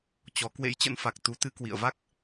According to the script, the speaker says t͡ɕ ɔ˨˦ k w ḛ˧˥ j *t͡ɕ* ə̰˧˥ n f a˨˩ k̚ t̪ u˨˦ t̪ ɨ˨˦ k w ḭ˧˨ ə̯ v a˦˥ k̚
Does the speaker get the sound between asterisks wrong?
no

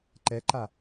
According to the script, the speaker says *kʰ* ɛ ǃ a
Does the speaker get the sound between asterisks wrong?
yes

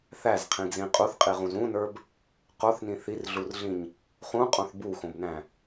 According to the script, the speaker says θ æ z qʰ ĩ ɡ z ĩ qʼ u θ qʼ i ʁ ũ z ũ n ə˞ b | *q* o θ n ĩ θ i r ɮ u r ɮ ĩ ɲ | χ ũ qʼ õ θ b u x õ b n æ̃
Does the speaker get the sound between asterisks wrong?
no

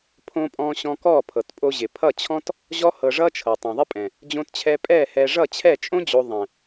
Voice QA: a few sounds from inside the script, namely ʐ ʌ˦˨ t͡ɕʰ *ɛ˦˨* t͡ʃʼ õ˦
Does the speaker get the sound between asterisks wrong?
no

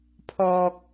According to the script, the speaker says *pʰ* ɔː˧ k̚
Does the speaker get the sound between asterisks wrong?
no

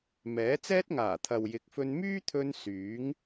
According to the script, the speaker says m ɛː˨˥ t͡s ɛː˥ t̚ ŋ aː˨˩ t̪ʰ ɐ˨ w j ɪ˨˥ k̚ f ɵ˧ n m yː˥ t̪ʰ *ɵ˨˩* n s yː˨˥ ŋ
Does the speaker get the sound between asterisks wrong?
yes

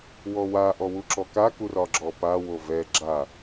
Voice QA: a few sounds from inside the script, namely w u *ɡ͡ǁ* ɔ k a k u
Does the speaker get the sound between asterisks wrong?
yes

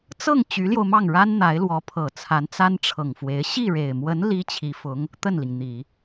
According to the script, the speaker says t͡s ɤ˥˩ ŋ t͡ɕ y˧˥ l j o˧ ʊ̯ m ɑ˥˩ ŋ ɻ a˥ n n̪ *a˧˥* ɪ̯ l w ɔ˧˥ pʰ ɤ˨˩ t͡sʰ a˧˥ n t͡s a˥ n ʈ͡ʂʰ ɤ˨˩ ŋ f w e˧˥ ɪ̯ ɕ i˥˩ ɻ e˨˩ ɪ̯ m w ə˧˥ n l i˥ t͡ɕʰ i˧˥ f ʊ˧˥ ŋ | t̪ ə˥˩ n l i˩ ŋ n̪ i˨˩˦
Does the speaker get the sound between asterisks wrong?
no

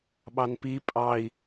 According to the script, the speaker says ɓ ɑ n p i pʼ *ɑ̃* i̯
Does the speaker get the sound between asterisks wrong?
yes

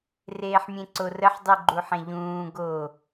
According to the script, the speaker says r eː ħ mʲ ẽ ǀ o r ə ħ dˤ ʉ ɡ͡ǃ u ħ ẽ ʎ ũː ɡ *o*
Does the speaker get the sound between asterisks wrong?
no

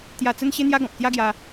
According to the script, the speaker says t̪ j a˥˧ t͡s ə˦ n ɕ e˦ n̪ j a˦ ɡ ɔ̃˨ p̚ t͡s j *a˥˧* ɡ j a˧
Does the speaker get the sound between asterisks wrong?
yes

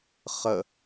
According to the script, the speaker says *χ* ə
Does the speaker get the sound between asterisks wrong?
no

